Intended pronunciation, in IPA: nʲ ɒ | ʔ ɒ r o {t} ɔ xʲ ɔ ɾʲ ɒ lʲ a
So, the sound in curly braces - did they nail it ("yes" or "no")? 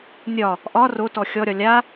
yes